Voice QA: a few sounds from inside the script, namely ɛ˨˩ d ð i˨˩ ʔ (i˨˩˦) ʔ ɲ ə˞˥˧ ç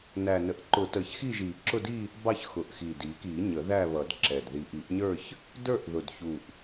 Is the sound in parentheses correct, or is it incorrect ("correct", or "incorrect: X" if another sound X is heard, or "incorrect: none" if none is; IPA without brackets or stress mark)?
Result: correct